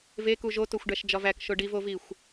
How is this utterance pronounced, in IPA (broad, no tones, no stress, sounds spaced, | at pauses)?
v e k u ʒ o t o xʷ ɖ æ ʃ d͡ʒ ɒ v æ k ʃ o ɖ i v o v i xʷ